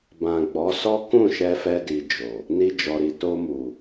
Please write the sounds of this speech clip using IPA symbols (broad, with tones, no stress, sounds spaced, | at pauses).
b ã˨ ɡ͡b ɔ˨˦ s ɔ˦ k ũ˦˨ ʃ ɛ˧ f ɛ˧ d i˨ d͡ʒ o˨ | n i˧ d͡ʒ ɔ˨ ɾ i˨ t o˧ m u˨